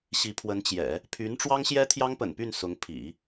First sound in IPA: ɕ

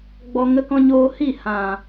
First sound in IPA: ɡ͡b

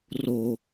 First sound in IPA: r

